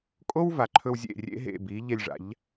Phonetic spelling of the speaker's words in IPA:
kʼ o˥ w v a˩ ǃʰ ɵ˧ w zʲ ḛ˥˩ rʲ ḛ˥ ɦ ḛ˥˩ b iː˩˥ ʎ e˧ lʲ ʐ a̰˩˥ ʎ

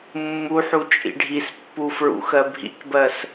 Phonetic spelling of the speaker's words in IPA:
mː u ħ u t͡ʃʼ ḭ ɖʱ i s pː u f ɹ ṵ x ɜ bʱ ḭ k b ɜ s

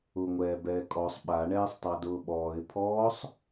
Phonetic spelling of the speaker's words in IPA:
ʊː ŋʷ ɛː b ɛː kʼ ɔ sˤ ɓ a ɳ ɛː sˤ tˤ a d ʊː ɓ ɔː ɪ̯ pʰ ɔː sˤ

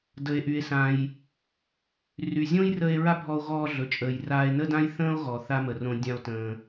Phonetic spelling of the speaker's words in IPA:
d ə˩ e̯ ʔ y˩ e̯ s ã˩ j | r y˩ zʲ õ˥ j r ə˧ e̯ ɹ a˥ bʱ ɔ˧ o̯ ɣ ɔː˧ ɮ ɵ˩ t͡ʃʼ əː˩ j r aː˧ e̯ n ə˥ d ã˥ j θ ə̃ː˥ o̯ ɣ ɔ˩ θ a˧ m ə˩ r õ˧ dʲ ã˧ o̯ t ə̃ː˩

